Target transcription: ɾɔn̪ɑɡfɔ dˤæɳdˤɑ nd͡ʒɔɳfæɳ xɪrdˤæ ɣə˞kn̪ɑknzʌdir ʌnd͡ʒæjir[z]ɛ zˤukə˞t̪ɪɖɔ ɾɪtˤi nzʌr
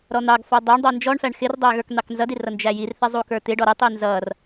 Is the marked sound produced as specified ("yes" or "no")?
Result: no